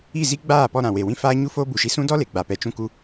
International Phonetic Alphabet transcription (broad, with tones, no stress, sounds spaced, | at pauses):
i˦˨ z i˦ ɡ͡b aː˦˨ p ɔ˧ ɾ ã˨ w e˨ w ĩ˦ f aː˦ ɲ u˦ f oː˦ b u˨ ʃ i˧ s ũ˦ d ɔ˦ l e˨ ɡ͡b a˨ p ɛ˨ t͡ʃ ũ˧ k u˧